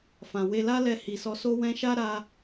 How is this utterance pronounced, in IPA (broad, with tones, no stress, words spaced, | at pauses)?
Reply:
fã˨we˧la˦ lɛ˧hi˨sɔ˧so˦ wɛ̃˧ʃa˦ ɾa˧